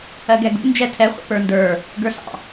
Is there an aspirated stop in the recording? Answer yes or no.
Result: yes